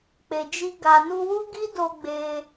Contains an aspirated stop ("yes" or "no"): no